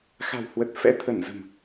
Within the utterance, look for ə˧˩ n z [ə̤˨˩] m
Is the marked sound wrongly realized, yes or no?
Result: no